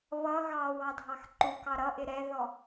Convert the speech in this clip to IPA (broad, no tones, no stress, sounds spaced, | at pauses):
β ʌ ɣ ɑ w ɑ dʱ ɑ x ǃ u k ɑ ɾ ʌ ʔ ɪ ɾ ɛ ð ɔ